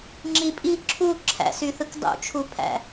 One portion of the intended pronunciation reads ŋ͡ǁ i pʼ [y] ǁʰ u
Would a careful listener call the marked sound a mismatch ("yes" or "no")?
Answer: yes